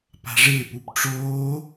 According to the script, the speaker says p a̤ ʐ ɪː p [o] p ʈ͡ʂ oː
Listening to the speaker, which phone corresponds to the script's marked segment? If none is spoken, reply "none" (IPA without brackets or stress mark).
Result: u